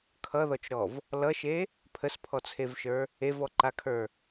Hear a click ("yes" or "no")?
yes